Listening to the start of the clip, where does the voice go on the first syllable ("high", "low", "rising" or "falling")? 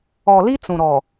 low